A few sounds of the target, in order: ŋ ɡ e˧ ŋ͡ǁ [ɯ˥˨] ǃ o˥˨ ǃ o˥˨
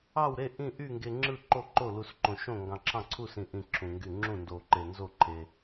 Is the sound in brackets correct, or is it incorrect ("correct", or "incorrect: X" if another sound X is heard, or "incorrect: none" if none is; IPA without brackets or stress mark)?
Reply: correct